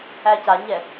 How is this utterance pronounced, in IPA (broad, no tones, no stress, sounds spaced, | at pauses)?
æ c a ɲ ɛ